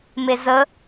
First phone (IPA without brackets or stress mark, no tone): m